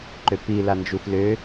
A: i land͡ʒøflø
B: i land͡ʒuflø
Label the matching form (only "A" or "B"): B